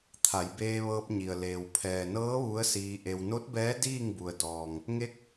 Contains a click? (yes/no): no